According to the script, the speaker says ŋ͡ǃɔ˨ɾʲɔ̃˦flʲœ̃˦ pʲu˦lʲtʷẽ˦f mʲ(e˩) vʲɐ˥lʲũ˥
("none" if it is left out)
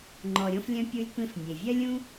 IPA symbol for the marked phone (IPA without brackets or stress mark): e˩